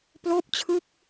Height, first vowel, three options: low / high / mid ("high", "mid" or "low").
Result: mid